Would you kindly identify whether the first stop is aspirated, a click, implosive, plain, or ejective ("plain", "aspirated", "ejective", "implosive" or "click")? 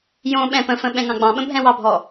implosive